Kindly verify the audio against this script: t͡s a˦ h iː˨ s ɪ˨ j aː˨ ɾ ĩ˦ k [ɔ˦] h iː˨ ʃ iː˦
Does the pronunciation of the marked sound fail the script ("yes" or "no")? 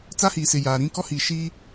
no